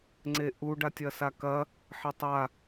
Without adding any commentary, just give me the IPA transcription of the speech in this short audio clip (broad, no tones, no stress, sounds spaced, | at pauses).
ŋ͡ǀ e ʔ u ɖ a tʲ ɐ s a k ɐ | ħ e tˤ a